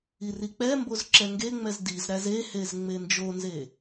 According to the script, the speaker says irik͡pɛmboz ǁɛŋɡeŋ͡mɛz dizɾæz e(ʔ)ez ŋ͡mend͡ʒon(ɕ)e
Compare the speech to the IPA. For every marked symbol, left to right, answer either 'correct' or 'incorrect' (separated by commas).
incorrect, incorrect